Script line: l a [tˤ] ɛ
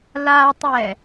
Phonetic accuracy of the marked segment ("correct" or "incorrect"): correct